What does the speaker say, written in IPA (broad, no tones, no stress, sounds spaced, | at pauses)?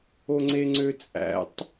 o ŋ͡ǀ e ŋ͡ǀ ø t͡sʼ æ̰ tˤ